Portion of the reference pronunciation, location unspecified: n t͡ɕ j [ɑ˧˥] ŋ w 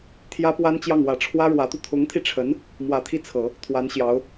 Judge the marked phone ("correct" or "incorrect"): incorrect